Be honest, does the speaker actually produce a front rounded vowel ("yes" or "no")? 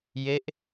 no